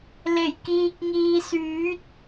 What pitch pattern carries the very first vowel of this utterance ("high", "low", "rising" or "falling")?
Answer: low